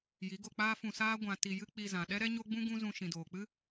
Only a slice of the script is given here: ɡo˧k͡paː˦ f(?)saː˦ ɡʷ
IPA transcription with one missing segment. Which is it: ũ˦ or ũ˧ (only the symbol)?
ũ˧